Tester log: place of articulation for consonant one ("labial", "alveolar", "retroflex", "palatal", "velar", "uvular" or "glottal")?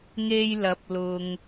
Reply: velar